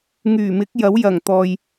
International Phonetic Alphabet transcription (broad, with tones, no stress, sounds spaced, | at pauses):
ŋ yː˨˩ m ɪ˨˥ k̚ j ɐ˨˥ w j ɐ˨˩ ŋ t̪ ɔː˨ j